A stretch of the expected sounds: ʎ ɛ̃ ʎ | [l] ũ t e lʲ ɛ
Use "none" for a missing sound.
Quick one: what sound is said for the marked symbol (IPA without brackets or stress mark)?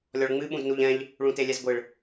ɭ